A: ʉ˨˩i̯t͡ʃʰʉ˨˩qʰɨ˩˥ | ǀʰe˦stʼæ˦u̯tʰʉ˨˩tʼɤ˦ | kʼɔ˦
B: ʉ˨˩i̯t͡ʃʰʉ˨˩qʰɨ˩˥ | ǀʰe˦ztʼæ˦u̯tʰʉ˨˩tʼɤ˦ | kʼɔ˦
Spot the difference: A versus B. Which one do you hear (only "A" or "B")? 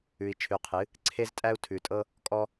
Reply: B